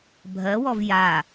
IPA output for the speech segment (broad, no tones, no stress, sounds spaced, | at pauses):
bʱ ɜ w ɔ v j a